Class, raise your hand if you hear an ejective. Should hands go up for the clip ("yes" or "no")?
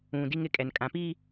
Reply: yes